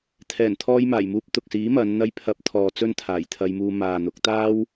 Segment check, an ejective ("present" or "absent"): absent